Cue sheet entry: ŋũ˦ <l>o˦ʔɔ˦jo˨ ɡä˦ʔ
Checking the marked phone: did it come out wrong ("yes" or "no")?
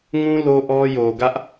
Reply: no